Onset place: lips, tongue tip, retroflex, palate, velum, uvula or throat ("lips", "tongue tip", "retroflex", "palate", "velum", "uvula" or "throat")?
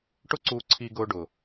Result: retroflex